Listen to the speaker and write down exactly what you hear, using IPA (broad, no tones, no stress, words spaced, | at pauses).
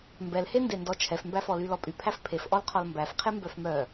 mbɛlhende ndɔt͡ʃʰɛfmbæfɔ lylɔpʼypʰæf pʰefʔɔlqʰɔl mbæfqʰe mbœfmœ